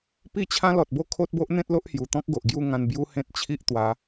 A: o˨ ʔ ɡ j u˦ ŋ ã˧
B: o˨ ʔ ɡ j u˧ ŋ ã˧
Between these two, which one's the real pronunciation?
A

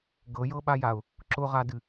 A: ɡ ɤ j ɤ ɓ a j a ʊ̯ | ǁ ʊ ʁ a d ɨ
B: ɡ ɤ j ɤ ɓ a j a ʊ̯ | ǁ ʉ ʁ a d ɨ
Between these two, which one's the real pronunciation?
A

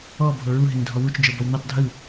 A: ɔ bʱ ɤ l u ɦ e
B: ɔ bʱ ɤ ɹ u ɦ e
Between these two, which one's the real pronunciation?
B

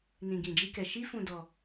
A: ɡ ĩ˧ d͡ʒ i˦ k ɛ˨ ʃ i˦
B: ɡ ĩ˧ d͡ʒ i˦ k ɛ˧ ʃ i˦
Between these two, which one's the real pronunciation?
B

